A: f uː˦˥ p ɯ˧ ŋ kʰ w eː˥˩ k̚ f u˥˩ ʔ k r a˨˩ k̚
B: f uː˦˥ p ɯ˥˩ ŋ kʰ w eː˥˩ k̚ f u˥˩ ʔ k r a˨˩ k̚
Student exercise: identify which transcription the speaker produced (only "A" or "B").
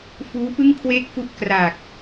B